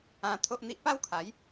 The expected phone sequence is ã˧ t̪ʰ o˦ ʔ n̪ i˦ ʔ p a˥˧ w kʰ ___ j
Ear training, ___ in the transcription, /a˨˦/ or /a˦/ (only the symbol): a˨˦